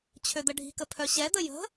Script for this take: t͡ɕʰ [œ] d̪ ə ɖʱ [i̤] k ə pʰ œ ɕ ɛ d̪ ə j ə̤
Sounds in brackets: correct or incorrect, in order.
incorrect: ø, correct

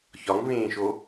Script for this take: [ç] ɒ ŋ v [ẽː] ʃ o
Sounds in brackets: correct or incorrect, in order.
correct, correct

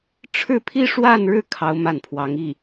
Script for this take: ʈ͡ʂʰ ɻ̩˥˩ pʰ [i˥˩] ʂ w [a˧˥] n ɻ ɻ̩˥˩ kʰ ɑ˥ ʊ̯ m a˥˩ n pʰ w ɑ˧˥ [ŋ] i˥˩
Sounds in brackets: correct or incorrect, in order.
incorrect: i˥, incorrect: a˥˧, correct

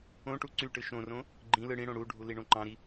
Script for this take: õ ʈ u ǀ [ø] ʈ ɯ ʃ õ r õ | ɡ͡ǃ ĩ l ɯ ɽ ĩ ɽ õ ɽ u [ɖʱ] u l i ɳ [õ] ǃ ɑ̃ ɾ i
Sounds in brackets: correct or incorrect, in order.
incorrect: y, correct, correct

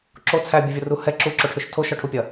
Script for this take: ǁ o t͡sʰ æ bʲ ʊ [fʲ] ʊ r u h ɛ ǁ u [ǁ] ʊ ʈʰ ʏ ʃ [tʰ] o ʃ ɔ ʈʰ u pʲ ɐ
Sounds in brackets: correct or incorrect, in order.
incorrect: vʲ, correct, correct

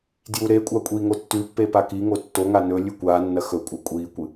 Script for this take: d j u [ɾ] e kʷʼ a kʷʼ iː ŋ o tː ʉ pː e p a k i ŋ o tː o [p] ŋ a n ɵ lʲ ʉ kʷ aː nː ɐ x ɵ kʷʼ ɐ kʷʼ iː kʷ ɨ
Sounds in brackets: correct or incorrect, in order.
correct, incorrect: none

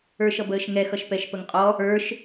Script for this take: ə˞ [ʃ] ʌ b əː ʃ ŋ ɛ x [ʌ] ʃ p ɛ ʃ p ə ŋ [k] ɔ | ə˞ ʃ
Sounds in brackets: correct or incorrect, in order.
correct, correct, incorrect: qʼ

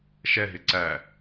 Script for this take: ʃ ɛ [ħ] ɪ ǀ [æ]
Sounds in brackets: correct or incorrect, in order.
incorrect: ɦ, correct

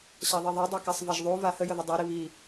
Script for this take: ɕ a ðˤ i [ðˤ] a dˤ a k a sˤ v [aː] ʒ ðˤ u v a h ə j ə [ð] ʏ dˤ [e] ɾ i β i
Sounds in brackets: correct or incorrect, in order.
correct, incorrect: a, correct, correct

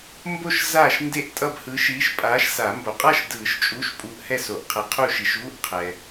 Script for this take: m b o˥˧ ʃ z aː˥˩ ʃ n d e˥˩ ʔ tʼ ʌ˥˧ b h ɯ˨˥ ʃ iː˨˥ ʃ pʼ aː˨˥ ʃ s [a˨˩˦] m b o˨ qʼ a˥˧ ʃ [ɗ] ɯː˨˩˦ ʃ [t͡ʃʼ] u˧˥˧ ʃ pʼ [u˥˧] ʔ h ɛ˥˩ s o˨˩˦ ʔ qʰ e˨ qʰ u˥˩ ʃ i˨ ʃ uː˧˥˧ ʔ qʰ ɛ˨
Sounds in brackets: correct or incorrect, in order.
correct, incorrect: d, correct, incorrect: u˨˥

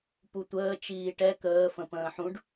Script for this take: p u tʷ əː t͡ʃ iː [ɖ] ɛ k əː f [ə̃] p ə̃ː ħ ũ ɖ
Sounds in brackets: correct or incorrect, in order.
incorrect: ʈ, correct

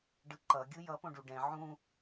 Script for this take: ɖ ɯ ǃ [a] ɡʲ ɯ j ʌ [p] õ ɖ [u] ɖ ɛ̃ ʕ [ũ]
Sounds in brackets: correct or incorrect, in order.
incorrect: ʌ, correct, correct, correct

